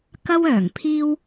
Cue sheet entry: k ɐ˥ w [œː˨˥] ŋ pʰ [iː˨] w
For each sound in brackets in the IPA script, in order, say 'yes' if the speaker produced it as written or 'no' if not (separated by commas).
no, no